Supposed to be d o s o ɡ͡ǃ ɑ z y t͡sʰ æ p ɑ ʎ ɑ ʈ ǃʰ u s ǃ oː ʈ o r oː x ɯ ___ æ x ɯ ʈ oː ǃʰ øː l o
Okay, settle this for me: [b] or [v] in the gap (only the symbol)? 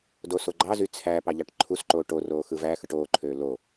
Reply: v